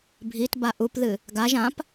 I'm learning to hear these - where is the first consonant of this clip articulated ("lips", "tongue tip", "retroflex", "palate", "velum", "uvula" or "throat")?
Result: lips